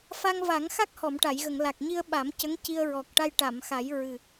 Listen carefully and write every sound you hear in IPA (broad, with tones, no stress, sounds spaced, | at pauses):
f a˧ ŋ v a˨˩˦ ŋ x a˦˥ k̚ h ɔ˨˩˨ m ʈ a˨˩˨ j ɣ ə˨˩˨ ŋ l a˨˩ k̚ ɲ i˧ ə̯ ɓ a˨˩˦ m c ə˧˥ ŋ c i˧ ə̯ ɹ ɔ˨˩ k̚ ʈ a˧ j ʈ a˨˩˨ m x a˨˩˦ j ɹ ɨ˨˩